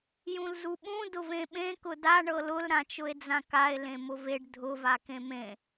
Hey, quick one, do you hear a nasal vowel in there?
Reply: yes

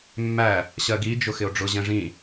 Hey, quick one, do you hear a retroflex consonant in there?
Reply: yes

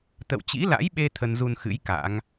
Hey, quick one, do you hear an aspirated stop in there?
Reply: yes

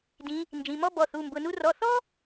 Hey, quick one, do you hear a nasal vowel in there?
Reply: yes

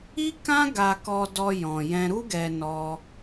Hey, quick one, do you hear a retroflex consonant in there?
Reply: no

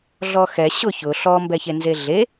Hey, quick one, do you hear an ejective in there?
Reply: no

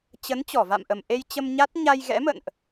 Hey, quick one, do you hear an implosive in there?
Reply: no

